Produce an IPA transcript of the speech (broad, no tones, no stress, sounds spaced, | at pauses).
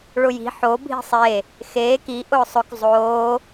ɭ ʊ j i̤ ħ o bʱ i̤ sˤ e | x eː k i ʔ ʊː sˤ ʊ k zˤ oː